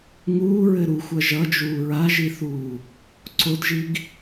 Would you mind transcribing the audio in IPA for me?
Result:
ŋ uː ɹ ɘ ɾ u xʷ ʌ ʒ ʌ d͡ʒ uː ɹ a ʒ i θ uː | ǀ o d ʒ i ɡ

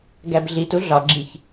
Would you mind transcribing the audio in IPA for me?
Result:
ɡ æ b ɮ i t u ɮ ɒ ɡ͡ǁ i ç

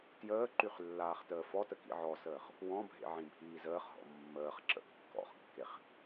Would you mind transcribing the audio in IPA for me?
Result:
t j əː ǃ y χ lː aː χ t əː f ɔ t ə k ḭ ʕ ɔ s əː χ | w ɔ̃ bʱ ḛ ʕ ĩ bʱ iː z əː χ ɦ ɔ̰ mː əː χ ǁ ə̰ kː ɔ̰ χ kː e χ

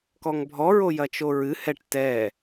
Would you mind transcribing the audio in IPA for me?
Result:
k ɔ ŋ bʱ ɔ ɹ o j ɐ t͡ʃ o ɹ ɨ h ɛ ʈ t ɛ

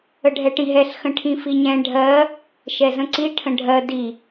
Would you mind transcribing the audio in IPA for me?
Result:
ə ɖʱ ɛ ʈ ĩ ɦ ɛ ɬ x ə̃ ʈʰ ĩ f i ɲ ɛ̃ ɖʱ ɜ | ʃ ɛ z ə̃ ǀ i ʈʰ ə̃ ɖʱ ɜ d i

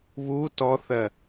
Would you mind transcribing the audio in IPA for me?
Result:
β u t ɔ θ ɜ

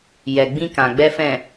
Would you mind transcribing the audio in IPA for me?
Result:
j ɛ˨ ɡ͡b ĩ˧ k ã˨ ɡ͡b ɛ˧ f ɛ̃˨

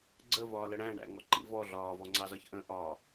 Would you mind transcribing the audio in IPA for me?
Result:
ɡ͡ǀ ə v ɒː l ə ɽ æ̃ ɳ æ̰ ŋ ɔ ǃ ḭ v ɔ ɮ ɒː v ɔ ŋ͡ǀ ɑ z ɒ ç ʔ ə̃ ʔ ɒ

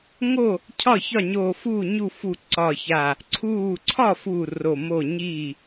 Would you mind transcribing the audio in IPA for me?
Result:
ŋ o˥˩ | cʰ ɒ˥˩ ç ɒ˥˩ ɲ oː˧˩ f uː˥˩ ɲ u˥˩ f uː˧˩ ǀ ɒ˧˩ ç a˧˩ | ǀʰ uː˧˩ ǀʰ ɒ˥˩ f uː˥˩ r o˧˩ m o˥˩ ɲ i˥˩

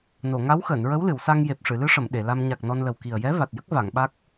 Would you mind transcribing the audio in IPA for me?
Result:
n o˨˩˨ ŋ a˧˥ w x əː˨˩˨ n ɹ ə˧˥ w l ɨ˨˩˨ w s a˧ ŋ j e˨˩ p̚ ʂ ɨ˨˩˨ l ɨ˧ ʂ ə˨˩˨ m ɗ e˨˩˨ l a˧ m ɲ a˨˩ k̚ n ɔ˧ n l ə˨˩ w k i˨˩ ə̯ j ɛ˧˥ v a˨˩ t̚ j ə˦˥ k̚ v a˨˩˨ ŋ ɓ a˦˥ k̚

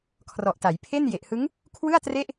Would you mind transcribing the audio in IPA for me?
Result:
kʰ r ɔ˨˩ ʔ t a˩˦ j pʰ e˥˩ n j e˨˩ ʔ h ɯ˦˥ ŋ | kʰ w ɯ˥˩ a̯ t r e˥˩ ʔ

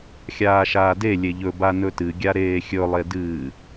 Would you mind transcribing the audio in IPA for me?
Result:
xʲ aː ʃ aː d e lʲ e ʎ ɵ b a n ɵ t ɨ ɡʲ a ɾ eː xʲ ɵ lˠ e d ɨː

